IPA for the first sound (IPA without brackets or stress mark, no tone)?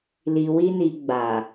l